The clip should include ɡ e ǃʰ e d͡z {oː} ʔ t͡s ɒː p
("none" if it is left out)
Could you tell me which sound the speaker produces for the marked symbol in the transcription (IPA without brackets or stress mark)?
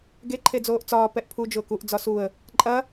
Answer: oː